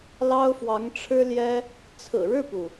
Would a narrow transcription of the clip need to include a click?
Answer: no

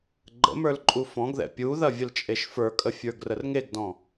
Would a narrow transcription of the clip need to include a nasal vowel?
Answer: yes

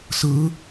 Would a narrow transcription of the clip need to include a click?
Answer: no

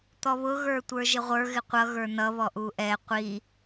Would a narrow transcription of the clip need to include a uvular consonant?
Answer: yes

